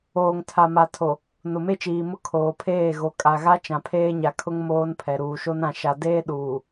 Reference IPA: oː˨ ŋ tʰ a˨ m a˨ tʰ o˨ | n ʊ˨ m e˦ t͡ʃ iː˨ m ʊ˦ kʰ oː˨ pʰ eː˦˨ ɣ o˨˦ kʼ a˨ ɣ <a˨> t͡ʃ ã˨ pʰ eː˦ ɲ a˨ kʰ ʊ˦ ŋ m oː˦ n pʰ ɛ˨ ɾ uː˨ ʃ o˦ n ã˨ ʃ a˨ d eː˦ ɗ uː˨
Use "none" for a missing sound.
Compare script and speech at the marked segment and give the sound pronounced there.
a˦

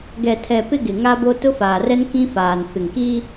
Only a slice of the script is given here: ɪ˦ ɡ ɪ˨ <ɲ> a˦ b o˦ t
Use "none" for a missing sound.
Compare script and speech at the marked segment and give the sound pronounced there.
ŋ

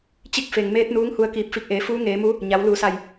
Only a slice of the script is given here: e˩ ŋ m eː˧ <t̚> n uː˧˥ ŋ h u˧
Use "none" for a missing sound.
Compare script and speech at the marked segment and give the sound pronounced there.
t̚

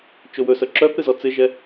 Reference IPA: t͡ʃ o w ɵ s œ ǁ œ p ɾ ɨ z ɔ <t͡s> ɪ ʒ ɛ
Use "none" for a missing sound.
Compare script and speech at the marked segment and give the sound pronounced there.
t͡s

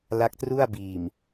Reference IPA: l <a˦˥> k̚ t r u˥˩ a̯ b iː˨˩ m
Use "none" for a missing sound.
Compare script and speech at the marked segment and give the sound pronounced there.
a˦˥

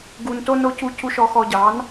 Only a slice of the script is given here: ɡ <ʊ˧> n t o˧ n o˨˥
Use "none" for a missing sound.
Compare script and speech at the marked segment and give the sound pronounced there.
u˧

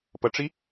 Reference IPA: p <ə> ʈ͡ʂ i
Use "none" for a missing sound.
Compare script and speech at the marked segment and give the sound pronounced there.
ə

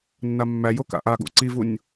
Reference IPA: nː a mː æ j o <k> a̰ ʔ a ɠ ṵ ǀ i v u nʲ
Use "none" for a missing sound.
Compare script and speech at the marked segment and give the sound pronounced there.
k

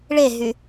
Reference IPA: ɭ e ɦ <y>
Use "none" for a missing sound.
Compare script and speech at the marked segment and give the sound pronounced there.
y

